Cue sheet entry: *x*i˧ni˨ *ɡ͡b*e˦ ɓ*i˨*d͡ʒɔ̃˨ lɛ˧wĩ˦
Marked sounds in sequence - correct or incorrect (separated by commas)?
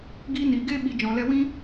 incorrect, incorrect, correct